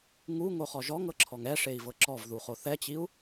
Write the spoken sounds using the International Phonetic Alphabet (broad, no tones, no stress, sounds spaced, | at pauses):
ŋ u ŋ o χ ɔ ʒ ɔ ŋ ɤ ǁʰ ɔ ŋ ɛ ʂ e i̯ v ɤ ǁ ɔ v ð u χ o θ ɛ t͡ɕ i u̯